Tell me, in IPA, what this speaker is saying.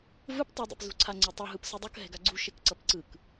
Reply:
v ɯ p tˤ i dˤ ḛ p z ṳ ǀʰ a ŋ͡ǀ e tˤ ʌ ɦ ɯ p s ɯ dˤ ʌ k ɦ ɛ̤ ɡ a ɡ͡ǀ ṳ ʃ e k ǀ ʌ p ǀ ɯ k

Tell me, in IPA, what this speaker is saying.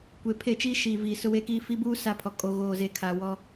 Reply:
kʷ e˨ pʰ e˦˨ t͡ʃ iː˦ ʃ iː˨ v iː˨ s ʊ˦ w e˦ k iː˦ f i˦ b uː˦ s a˦ pʰ ɔ˨ kʼ o˨ ɣ oː˨ z e˨ kʰ a˨ w ɔ˦

